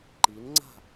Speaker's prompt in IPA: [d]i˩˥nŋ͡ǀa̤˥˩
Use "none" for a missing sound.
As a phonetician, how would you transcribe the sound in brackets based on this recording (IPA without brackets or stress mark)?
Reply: ǃ